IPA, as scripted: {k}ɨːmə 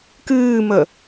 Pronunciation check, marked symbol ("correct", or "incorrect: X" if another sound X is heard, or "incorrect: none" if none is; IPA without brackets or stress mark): correct